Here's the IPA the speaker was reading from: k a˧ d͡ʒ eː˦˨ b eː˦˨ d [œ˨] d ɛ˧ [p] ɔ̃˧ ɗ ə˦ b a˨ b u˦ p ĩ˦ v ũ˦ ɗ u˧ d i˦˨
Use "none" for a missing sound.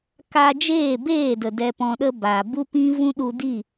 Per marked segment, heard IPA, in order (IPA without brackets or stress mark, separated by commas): ə˨, p